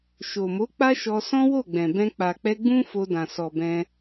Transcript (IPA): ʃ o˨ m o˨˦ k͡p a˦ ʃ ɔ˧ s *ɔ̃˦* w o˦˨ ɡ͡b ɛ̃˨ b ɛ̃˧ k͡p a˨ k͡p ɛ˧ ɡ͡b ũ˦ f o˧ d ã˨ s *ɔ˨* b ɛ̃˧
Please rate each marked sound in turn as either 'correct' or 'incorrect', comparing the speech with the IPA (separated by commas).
correct, correct